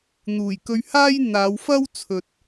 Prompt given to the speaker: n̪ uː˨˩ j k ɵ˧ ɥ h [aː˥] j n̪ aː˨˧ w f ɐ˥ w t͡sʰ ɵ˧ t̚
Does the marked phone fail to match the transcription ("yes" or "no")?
no